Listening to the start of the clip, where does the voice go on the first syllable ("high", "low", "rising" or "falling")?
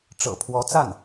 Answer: low